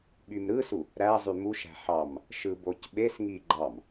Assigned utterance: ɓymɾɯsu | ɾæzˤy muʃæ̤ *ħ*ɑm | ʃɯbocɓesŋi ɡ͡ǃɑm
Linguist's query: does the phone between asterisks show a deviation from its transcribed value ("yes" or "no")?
no